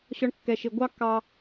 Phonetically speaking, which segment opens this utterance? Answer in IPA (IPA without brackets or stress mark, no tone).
ɕ